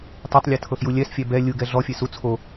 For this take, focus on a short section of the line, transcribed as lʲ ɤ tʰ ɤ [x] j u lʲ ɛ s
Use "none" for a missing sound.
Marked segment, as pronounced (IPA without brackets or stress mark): x